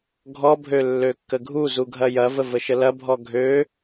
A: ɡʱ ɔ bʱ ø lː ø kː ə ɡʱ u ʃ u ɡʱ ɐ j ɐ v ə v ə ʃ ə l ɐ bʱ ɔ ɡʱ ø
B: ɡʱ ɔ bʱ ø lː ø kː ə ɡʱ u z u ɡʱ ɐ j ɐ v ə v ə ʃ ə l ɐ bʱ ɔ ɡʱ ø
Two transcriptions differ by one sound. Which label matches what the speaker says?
B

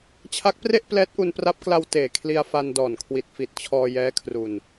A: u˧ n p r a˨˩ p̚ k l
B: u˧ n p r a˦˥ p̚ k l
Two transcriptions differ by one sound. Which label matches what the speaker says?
B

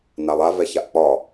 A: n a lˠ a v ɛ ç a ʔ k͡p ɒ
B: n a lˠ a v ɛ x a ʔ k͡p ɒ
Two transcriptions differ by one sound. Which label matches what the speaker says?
A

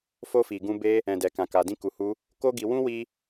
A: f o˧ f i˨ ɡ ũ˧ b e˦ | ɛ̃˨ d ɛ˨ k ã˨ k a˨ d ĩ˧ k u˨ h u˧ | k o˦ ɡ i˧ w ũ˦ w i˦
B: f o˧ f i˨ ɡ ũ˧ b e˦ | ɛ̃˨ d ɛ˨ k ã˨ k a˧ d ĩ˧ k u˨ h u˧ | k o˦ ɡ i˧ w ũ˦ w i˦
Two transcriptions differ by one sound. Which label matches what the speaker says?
A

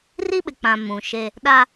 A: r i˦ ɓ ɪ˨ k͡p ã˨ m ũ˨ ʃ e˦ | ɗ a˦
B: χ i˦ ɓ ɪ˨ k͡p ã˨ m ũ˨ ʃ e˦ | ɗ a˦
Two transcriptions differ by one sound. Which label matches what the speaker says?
A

